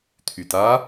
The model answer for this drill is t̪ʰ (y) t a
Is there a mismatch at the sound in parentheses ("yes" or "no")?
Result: no